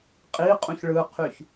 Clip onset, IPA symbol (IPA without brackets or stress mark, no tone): qʼ